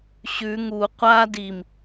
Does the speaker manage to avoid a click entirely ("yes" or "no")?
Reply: yes